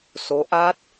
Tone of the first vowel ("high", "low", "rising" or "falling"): rising